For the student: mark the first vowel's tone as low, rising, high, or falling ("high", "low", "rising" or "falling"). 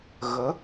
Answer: rising